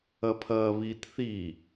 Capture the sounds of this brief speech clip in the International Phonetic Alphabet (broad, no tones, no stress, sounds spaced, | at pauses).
ɐ pʰ ɐː β i t θ i